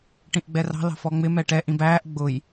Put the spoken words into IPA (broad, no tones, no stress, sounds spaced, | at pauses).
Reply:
ʈ ĩ ʔ ɡ͡b ɛ r ɑ̤ l ɑ̤ f ɔ ŋ͡m ɪ m ɛ ʈ ɛ ʔ ĩ b æː ʔ ɡ͡b ʊ j